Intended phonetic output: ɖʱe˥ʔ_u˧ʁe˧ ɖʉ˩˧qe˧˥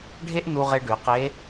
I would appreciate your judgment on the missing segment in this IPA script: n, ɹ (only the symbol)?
n